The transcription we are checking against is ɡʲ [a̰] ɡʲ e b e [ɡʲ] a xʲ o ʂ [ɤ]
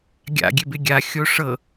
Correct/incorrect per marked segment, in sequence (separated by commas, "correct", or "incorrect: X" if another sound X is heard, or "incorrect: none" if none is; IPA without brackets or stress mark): correct, correct, correct